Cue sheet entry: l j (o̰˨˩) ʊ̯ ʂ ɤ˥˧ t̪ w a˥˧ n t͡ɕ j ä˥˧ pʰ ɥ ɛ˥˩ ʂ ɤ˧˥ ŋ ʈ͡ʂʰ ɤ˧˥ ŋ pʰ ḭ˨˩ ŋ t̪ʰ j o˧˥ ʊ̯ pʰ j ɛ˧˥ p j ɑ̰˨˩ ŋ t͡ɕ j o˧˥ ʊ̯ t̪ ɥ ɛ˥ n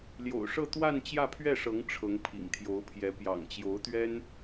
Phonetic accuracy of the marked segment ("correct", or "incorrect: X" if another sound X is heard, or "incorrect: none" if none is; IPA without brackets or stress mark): correct